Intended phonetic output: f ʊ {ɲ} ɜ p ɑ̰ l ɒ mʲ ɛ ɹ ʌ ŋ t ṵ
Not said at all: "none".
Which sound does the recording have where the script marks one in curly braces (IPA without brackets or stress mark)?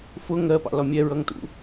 ŋ